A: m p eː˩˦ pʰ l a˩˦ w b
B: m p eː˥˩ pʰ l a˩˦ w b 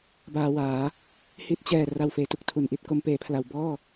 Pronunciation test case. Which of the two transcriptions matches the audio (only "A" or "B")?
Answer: A